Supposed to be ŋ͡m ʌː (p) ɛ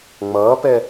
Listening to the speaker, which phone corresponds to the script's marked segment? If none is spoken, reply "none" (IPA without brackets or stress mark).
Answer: p